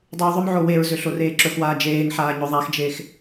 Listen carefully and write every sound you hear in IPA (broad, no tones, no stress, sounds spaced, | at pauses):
dˤ y w ðˤ ɵ m ʕ o w e ɹ z ø ɬ o r eː ǁ ɵ x w aː d͡ʒ eː ŋ ħ aː ɲ ɵ ðˤ a x d͡ʒ e x